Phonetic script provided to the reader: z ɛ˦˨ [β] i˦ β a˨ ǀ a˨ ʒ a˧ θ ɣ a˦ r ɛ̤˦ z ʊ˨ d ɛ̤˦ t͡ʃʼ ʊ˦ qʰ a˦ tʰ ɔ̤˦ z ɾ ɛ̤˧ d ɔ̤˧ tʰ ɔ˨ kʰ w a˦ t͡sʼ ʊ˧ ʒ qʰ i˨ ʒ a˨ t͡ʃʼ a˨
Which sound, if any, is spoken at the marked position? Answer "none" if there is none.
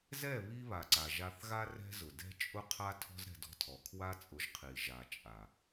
β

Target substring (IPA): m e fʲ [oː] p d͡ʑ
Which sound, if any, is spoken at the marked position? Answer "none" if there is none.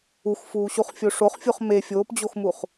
oː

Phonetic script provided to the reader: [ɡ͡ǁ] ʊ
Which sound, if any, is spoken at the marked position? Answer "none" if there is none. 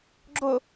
ɡ͡ǁ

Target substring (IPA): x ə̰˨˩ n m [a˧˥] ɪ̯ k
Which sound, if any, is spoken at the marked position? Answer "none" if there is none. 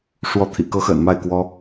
a˥˩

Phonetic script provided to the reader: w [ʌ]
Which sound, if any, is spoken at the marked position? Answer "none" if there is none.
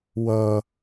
ʌ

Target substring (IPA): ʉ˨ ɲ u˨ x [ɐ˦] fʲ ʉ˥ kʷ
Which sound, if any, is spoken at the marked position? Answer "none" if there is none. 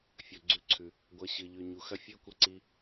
ɐ˥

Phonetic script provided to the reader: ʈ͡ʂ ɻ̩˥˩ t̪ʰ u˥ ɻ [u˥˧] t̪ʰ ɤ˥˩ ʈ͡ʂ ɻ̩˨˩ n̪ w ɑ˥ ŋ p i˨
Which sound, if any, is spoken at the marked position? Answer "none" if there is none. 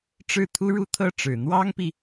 u˥˧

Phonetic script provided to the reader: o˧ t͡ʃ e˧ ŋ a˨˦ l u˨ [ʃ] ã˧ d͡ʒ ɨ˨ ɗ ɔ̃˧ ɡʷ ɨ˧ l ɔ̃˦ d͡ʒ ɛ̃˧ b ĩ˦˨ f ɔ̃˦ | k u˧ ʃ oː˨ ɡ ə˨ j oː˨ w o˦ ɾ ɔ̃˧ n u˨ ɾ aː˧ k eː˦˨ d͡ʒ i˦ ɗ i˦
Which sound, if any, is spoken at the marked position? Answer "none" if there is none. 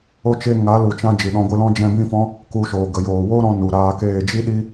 t͡ʃ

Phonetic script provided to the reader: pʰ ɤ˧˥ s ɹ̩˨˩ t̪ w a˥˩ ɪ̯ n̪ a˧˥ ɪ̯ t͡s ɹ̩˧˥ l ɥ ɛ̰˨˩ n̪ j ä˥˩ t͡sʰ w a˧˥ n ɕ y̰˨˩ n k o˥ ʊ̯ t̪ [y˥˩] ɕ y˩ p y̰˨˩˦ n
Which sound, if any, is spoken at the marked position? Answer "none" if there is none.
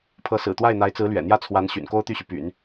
y˥˩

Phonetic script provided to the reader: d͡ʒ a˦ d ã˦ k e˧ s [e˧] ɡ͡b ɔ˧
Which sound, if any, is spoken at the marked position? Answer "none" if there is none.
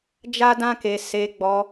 e˧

